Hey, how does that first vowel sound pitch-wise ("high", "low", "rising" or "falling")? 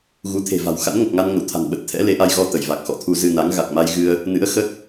rising